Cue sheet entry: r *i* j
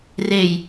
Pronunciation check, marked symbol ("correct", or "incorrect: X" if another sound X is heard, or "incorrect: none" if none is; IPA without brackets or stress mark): incorrect: e